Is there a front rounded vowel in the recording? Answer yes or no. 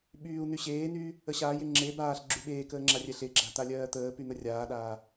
yes